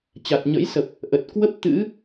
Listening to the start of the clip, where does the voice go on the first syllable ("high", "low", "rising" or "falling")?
low